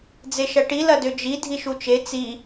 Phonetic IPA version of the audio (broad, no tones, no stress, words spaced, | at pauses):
d͡zeʃɐʈi lɐdød͡ʒi dʱiʃut͡ʃe t͡si